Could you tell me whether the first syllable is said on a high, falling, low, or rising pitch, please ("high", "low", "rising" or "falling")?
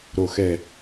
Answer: low